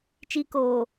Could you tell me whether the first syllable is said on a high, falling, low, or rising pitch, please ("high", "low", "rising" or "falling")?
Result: high